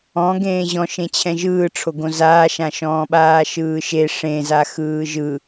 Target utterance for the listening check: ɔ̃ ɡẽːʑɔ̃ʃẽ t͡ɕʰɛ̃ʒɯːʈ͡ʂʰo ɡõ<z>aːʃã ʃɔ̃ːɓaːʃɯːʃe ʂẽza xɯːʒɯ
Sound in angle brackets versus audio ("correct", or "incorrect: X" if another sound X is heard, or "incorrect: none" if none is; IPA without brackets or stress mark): correct